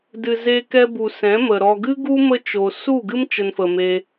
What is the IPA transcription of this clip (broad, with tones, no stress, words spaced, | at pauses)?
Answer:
dɨ˨ze˧kɛ˧ bu˨sɛ̃˨˦mə˨ ɾɔ˨ɡɨ˦ ɡu˦ mə˦t͡ʃo˨ su˦˨ɡɨ˦m t͡ʃə˧nfə˨me˧